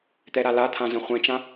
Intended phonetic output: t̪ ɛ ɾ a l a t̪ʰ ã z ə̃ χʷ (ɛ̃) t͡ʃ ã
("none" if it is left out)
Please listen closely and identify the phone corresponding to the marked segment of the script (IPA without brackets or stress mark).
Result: ɛ̃